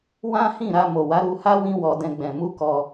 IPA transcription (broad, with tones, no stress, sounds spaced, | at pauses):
w ã˦ h ĩ˦˨ ɾ a˧ m o˨ w a˨˦ ɾ u˧ h a˦ w ĩ˦ w ɔ˧ d ɛ̃˧ ɡ͡b ɛ̃˨ m u˧ k ɔ˧